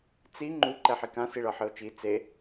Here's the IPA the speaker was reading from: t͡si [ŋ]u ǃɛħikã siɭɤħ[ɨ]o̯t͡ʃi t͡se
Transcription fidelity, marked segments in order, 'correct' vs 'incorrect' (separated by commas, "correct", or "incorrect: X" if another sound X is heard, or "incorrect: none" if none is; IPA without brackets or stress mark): incorrect: ŋ͡ǃ, correct